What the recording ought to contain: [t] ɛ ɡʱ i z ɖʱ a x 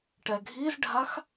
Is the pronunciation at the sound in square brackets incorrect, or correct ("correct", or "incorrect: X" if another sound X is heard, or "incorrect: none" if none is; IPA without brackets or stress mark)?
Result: incorrect: ʈ